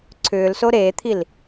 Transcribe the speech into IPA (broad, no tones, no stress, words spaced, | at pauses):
ǀʰʏːlso ɾeːt̪ʰil